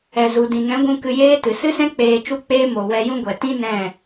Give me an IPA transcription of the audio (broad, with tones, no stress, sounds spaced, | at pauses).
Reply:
ɛ˨ z u˨ d ĩ˨ ŋ ɛ̃˨˦ ɡʷ ũ˧ k ɨ˧ j eː˦ t ɨ˨ s ɨ˦ s ɛ̃˦ k͡p eː˧ t͡ʃ u˦ k͡p eː˦ m o˨ w ɛ˧ j ũ˦ ɡʷ ɛ˨ t ĩ˦ n ɛ̃˦˨